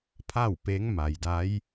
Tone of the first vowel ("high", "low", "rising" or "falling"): falling